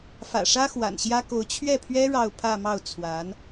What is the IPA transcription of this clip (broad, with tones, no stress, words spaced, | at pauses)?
fä̰˨˩ʂä˥ xwa̰˨˩nɕjä˥ko˧˥ʊ̯ t͡ɕʰɥɛ˥˩pʰɥɛ˥ ɻɑ˥˧ʊ̯pʰä˥˧mɑ˥˩ʊ̯ t͡sʰwa˧˥n